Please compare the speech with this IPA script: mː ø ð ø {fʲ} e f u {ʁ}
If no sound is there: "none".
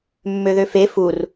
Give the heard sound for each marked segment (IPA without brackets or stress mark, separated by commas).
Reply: f, r